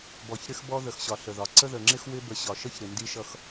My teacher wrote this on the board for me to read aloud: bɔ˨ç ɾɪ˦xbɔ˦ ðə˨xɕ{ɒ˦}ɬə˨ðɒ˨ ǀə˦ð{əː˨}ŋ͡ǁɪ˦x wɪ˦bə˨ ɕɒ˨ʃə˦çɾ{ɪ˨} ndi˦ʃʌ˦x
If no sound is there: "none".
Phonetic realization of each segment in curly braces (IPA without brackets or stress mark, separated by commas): ɒ˨, ə˨, ɪ˨